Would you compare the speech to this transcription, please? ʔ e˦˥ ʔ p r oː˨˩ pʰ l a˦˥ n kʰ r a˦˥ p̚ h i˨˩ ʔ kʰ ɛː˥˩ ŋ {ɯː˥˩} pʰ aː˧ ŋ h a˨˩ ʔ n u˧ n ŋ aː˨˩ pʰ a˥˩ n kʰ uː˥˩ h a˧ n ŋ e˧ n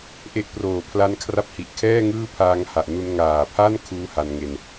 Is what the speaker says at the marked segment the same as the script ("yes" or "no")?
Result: yes